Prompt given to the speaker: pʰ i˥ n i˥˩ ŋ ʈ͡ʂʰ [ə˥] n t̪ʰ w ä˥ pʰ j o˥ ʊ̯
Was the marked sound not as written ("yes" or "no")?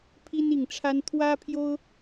yes